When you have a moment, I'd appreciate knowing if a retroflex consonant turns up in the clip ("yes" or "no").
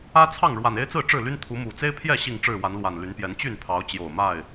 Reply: yes